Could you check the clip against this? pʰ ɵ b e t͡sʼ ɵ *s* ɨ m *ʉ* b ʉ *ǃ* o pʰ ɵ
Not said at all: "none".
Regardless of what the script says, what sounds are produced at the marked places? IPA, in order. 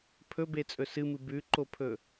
s, ɨ, ǃ

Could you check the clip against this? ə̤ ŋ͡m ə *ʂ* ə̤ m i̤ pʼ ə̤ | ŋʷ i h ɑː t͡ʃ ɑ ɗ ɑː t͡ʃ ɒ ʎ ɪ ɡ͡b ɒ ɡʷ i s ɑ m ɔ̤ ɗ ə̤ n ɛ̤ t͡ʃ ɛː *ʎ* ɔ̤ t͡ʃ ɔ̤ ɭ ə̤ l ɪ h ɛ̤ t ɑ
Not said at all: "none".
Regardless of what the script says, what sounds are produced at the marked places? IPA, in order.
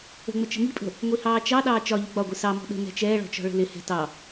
t͡ʃ, ɭ

